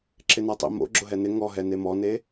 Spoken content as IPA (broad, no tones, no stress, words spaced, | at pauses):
ǁɪnatˤḭ mo̰ ɡ͡ǁʊɦɛnɪ ŋɔɦɛ nemɔne